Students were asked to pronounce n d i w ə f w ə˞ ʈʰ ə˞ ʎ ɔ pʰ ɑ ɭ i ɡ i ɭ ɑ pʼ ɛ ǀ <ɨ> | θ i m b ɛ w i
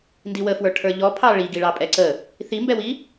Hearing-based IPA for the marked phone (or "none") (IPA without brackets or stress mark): ə